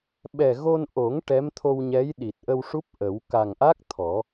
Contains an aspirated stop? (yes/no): yes